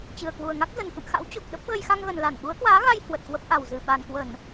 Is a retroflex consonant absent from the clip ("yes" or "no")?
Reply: yes